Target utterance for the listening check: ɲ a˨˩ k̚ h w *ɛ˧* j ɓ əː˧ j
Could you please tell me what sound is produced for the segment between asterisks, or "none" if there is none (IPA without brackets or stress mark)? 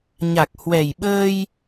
ɛ˨˩